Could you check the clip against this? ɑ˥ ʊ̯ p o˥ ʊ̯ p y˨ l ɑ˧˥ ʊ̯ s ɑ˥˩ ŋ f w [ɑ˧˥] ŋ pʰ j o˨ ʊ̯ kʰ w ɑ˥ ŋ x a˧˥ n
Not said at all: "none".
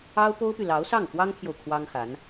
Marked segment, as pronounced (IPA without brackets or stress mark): ɑ˥